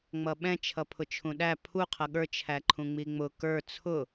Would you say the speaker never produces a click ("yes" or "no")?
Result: no